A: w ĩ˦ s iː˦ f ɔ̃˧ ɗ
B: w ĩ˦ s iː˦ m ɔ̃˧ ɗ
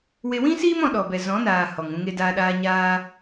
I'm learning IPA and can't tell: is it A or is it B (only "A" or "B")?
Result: B